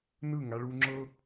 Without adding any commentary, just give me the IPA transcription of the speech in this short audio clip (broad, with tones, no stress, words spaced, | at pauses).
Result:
nɯ˦˨ŋa˧ɭu˧ ŋ͡ǁɤ˦